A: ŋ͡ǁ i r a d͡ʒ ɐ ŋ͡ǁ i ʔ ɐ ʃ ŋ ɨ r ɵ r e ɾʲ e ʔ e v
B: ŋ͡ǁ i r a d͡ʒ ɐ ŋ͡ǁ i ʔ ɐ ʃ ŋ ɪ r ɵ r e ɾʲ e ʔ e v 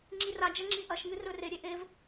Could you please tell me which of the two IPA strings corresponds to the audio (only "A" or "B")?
A